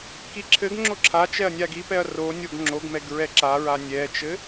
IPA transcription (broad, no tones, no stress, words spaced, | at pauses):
kiǁʰɘɡŋ͡ǁo ǁʰat͡ʃɛɐ̯ nʲaɡipɛɐ̯ ronʲoɡ ŋ͡ǁoɡmɛɡ ɹɛǁaɹa nʲɛt͡ʃɘ